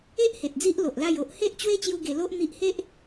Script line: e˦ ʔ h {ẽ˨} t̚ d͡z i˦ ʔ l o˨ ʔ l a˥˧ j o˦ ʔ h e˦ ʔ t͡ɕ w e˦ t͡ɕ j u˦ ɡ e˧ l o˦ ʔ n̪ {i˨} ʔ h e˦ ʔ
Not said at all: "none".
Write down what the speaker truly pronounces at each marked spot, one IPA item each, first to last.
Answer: e˨, i˦

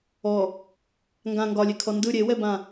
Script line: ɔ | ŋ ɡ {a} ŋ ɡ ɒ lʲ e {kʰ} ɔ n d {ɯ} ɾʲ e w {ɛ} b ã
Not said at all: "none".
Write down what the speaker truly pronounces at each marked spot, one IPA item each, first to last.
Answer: ã, kʰ, ɯ, ɛ

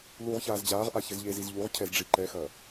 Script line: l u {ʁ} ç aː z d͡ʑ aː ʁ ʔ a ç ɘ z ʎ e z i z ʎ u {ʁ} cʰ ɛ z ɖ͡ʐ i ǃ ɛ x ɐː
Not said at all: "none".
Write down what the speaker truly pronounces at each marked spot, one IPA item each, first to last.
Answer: ʁ, ʁ

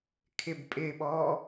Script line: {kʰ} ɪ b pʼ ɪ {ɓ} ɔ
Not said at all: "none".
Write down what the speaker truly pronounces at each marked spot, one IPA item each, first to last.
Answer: kʰ, ɓ

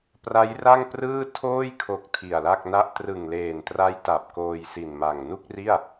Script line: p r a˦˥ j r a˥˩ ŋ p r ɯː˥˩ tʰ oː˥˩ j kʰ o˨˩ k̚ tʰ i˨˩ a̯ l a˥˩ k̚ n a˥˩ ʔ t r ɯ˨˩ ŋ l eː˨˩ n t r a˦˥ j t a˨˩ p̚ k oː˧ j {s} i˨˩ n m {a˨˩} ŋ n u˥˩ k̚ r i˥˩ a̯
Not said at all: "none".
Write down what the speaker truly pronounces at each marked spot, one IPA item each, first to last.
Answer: s, a˨˩

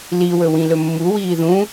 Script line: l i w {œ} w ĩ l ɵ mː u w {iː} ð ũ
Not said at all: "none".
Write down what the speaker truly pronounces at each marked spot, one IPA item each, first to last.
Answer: ɵ, iː

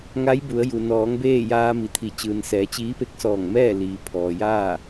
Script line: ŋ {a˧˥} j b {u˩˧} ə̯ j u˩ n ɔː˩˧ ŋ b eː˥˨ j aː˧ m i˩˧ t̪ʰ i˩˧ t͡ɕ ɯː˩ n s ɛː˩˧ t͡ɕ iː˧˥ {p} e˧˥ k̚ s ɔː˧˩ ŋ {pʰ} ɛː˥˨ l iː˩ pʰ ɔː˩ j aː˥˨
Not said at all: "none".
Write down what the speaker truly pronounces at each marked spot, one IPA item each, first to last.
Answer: a˧˥, u˩˧, p, m

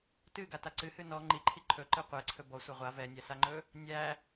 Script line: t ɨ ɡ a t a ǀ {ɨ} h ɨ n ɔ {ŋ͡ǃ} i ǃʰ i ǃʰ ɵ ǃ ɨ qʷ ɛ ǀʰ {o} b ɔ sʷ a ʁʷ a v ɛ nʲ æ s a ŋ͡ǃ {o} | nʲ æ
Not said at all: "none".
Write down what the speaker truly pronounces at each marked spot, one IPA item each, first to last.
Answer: ɨ, ŋ͡ǃ, ɵ, ɵ

